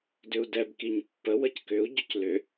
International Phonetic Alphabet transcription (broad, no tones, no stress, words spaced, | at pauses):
dʏu̯dɛb kiɲpːə wəckʏu̯ ɟʏclʏ